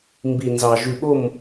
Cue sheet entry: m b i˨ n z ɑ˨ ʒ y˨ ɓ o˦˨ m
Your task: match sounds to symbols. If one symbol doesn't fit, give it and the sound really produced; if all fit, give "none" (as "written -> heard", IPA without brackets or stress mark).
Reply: none